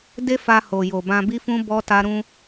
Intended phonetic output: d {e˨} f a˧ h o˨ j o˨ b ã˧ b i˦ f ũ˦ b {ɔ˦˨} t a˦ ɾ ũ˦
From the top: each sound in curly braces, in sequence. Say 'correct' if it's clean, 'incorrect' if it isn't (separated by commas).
incorrect, incorrect